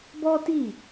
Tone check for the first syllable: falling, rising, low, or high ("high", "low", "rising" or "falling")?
high